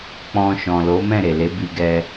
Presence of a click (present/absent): absent